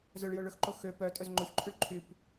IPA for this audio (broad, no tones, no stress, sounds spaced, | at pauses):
z œ ɭ j o ɭ ɵ x ǃ o x ø p œ tʼ ɵ z ŋ͡ǃ o ç ǃʰ y ɭ ǃʰ y p